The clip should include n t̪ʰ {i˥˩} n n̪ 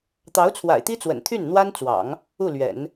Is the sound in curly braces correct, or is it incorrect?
incorrect